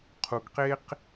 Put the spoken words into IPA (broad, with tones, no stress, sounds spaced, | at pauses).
qʰ u˨ ɡ q e˧ q